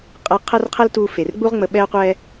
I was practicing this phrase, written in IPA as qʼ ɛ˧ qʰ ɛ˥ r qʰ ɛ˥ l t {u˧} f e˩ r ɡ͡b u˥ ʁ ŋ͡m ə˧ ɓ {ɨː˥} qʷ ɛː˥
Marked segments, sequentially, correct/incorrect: incorrect, incorrect

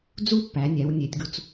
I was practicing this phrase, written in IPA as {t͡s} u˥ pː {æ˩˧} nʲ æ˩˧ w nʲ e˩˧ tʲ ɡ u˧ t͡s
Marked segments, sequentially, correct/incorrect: incorrect, correct

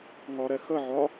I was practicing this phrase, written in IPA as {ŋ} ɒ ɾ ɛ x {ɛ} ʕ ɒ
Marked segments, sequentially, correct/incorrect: correct, incorrect

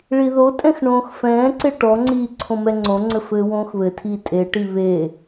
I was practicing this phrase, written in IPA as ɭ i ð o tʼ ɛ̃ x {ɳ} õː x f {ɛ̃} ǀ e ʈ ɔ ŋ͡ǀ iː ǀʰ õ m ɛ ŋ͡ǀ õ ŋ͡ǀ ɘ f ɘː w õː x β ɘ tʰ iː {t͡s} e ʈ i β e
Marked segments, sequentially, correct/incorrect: correct, incorrect, incorrect

